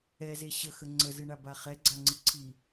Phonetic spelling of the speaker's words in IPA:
ɛ z e ɕ ə x ə ŋ͡ǀ ə z ɨ ɳ a b a χ ɛ ɡ͡ǀ a ŋ͡ǀ ɨ ǀʰ i

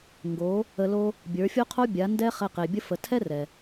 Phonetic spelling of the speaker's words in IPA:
ŋ ɡ o˨˦ | ə˧ l o˦ | bʲ ə˞˨˦ fʲ o˦ qʰ o˦ bʲ a˨˦ n d ɛ˦ χ ɛ˧ q e˨ bʲ ə˦ f ə˨ tʰ ɛ˦ r ɛ˨

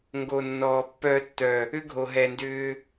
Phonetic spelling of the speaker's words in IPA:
ŋ ɡ o˨ nː ɔː˨ pː œː˧ tː œ˨ | ʏ˦ ɡʱ o˨ ɦ ɛ˨ n d ʏː˧

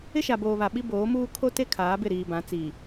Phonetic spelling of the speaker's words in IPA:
ɪ˦ ʃ a˨ b oː˨ β a˨ ɓ i˦ b oː˨˦ m uː˦ kʰ o˦ t e˦ kʰ aː˨˦ b ɪ˦˨ ɾ iː˨ b ã˨˦ t͡s i˨

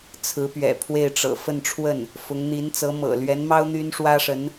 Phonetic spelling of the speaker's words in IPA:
t͡sʰ ɹ̩˧˥ p ɥ ɛ̰˨˩ pʰ w e˥˩ ɪ̯ ʈ͡ʂ ɤ̰˨˩ f ə˥˧ n ʈ͡ʂʰ w ə˥˩ n | f ʊ˧˥ ŋ n̪ i˧˥ n t͡s ɤ˧˥ m ɤ̰˨˩ l ɥ ɛ˧˥ n m ɑ˥ ʊ̯ n̪ y˥ n ʂ w ä˥ ʂ ə˧˥ n

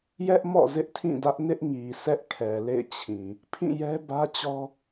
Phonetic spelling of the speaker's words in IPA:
j ɛ˦ ʔ m ɔ̰˦˨ z ɪ˦ ʔ tʰ ĩ˦˨ d ä˦ ʔ n ɪ˦ ʔ ŋ i˨ s ɛ˦ ʔ kʰ ɛ˨ l ḛ˦˨ ɪ̯ t͡ɕʰ ĩ˨ | pʰ ĩ˦˨ j ɛ˦ b ä˦ t͡ɕ ɔ˦

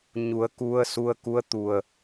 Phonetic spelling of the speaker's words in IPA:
ɲ u˩˧ ə̯ k u˧ ə̯ s u˧ ə̯ k u˧˥ ə̯ t̪ u˧˩ ə̯

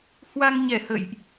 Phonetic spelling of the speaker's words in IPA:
h w a˧ ŋ ɲ ɛ˧˩ h ə̰˧˨ j ʔ

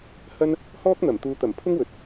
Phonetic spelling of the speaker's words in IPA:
h ɐ˥ n | h ɔː˥ k̚ n̪ ɐ˨˩ m t̪ uː˨ t̪ ɐ˨˩ m pʰ ʊ˥ ŋ w ɵ˨ t̚

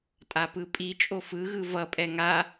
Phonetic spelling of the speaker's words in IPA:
tʼ a p ɯ pʼ i t͡ʃʼ o f ɯ ɣ ɯ v ʌ pʼ ɛ ŋ a

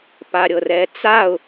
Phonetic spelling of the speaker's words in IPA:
p a ɾʲ ɤ r ɛ t͡s a ʊ̯

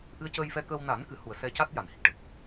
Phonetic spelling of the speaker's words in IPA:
ʔ ɨ˧ ə̯ c əː˧ j f ɛ˧ k əː˧ w n a˨˩˦ n k ɨ˨˩˦ h u˨˩ ə̯ s ɛ˧ c a˦˥ t̚ j a˨˩ n h i˨˩ k̚ ʈ ə˨˩ k̚

